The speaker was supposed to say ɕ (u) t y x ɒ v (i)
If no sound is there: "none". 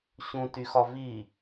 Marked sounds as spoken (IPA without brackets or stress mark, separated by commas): ũ, i